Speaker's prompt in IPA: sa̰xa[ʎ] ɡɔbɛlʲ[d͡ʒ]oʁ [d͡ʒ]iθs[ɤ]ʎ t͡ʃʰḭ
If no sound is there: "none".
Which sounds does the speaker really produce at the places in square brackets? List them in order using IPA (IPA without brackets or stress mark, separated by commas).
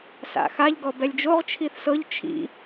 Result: ʎ, d͡ʒ, t͡ʃʰ, ɤ